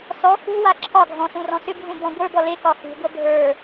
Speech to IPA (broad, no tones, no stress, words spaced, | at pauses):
sɔ xṳwa ǁʰɒɡʱɔ̃ sũrɔ̃sʏbʱũ bɔ̃ɡʷə˞bɔ le kɒxṳɡʷʌ bʱə˞